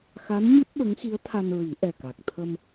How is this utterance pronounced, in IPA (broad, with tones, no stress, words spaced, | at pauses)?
xa˧˥nɲɨ˦˥p̚ ɓə˧˥ŋxi˧˥ə̯t̪ʰa˧nɹi˨˩˦ ʔɛ˨˩ka˨˩k̚ t̪ʰə˧m